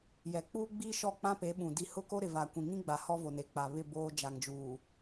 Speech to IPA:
jɛ˨k͡puː˦ɡ͡biː˦ʃɔ˦˨ k͡pã˦pe˨˦ɓũ˨ di˨ hʊ˦˨ko˦ɾɪ˨ va˨kʷĩ˨ ŋĩ˦ɡ͡ba˨ hɔ˦vo˨ne˨k͡pa˨ βɪ˦˨ boː˦ d͡ʒa˨ŋd͡ʒuː˨

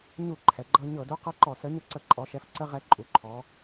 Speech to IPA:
ɲu˧˩˧ ǃʰɛ˩˧ɡ͡ǃɤ˦ ɲɤ˧˩˧du˨˥ qɤ˦ǃɔ˧˩˧sə˨˥ ɲɤ˦ǀə˧˩˧ ǃʼɔ˩˧ʃɛ˩˧f ǀə˦ ʁɛ˨˥ǃʼu˩˧ǃʰɔ˩˧

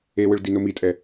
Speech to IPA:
ewɯɭdino mitʼɛ

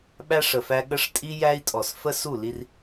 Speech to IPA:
ɓæ˦ʂə˨fæ˦ ɠə˦ʂtʼi˦jæ˦i̯tʼɔ˨s fə˦su˦˨ li˦r

